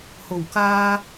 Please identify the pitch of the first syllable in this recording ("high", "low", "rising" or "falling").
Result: low